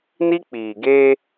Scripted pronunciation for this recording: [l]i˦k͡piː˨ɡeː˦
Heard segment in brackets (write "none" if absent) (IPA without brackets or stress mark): n